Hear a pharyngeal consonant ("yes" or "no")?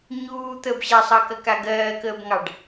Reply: no